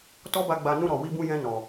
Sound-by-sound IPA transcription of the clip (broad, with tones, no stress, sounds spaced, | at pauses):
t ɔ˦ b a˧ ɡ͡b a˧ n ũ˧ ɾ ɔ˨ w i˧ b ũ˧ j ɛ̃˧ n ɔ˨